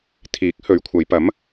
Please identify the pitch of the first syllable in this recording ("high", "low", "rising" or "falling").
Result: rising